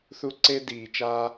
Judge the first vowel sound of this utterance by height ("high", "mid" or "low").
high